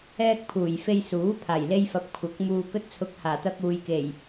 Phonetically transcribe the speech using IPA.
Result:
ɛː˧ k̚ pʰ uː˨˩ j f e˧ j s uː˨˥ pʰ aː˨˩ j l e˧ j f ɐ˨ p̚ kʷʰ ɐ˨˥ k̚ m uː˨ k ɵ˧ t̚ t͡sʰ ʊ˨˥ k̚ h aː˨˩ t̪ ɐ˧ k̚ uː˨ j k e˨˩ j

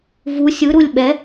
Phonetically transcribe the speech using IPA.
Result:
v u sʲ ɯ ɾ u lʲ ɓ ɛ

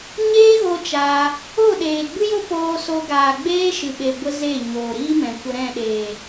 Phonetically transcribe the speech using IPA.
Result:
ɲ eː˦ ɣ o˧ t͡ʃ aː˧ | o˦˨ ɗ eː˨ ɡ͡b ɨ˦ j o˦ p oː˧ s o˧ ɡ aː˨ ɡ͡b eː˦ ʃ ɨ˨ ɓ e˨ ɡʷ ə˧ z e˦˨ ɲ oː˨ ɾ iː˦ m ɛ̃˨ kʷ ə˧ ɾ ɛ̃˦˨ ɗ eː˨

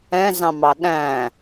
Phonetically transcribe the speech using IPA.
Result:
ɛ̃ z ɑ̃ m ɑ ɗ æ̃

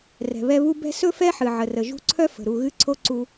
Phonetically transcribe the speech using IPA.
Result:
r ɛ̤˩ β ɛ˦ β u˥ b ɛ̤˦ s ɵ˥ f ɛ˥ ħ ɨ˩ ʕ ə˩ r ə˩ ʒ ṳ˦ ǀʰ œ˥ f ə̤˩ ɾ u˨ ɣ ɨ˥ ǀʰ o˥ ǀ u˨

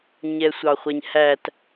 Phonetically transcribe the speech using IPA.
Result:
ɲ ɛ sʷ ɑ χʷ ɛ ɲ h æ t

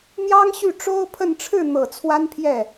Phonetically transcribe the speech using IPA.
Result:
n̪ j ɑ˥ ŋ ɕ y˥˩ ʈ͡ʂ o˥ ʊ̯ pʰ ə˥˧ n ʈ͡ʂʰ ɻ̩˥˩ n̪ ɤ˨˩ t͡sʰ w a˥ n pʰ j ɛ˥˩

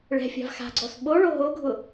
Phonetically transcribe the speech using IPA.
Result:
ɭ ɛ̤ fʲ a̤ v x a̤ ɡ͡ǀ ɔ s ɓ o ɭ o ɦ o ɡʱ ʊ

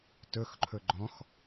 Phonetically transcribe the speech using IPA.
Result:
t ɵ x ǃʰ ɵ ɡ͡ǃ ɔ̃ x

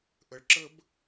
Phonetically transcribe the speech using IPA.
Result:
ʔ ə˨ ɭ ǁ ə˦ b

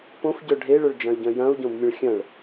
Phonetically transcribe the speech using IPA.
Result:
p õ f ɟ œ ɖʱ e ɭ œ ɭ d͡ʒ ɐ̃ y̯ ɟ œ̃ j ɐ̃ u̯ ɟ õ b mʲ ə̃ ɭ xʲ ɐ̃ ɭ

